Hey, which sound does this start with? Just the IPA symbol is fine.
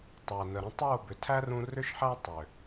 tˤ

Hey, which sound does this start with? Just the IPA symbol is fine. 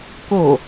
k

